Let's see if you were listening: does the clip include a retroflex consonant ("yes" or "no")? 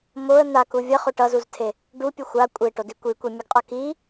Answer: yes